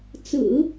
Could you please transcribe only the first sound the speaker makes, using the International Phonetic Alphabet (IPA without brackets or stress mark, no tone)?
t͡s